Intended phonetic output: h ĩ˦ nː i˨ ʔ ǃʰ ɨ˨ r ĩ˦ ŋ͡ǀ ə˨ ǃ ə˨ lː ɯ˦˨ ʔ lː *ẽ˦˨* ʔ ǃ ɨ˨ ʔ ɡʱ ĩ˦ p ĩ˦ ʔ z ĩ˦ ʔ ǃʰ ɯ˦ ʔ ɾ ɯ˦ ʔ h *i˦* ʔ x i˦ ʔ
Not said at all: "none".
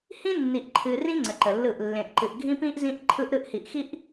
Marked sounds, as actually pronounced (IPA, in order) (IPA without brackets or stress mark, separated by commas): ẽ˨, i˨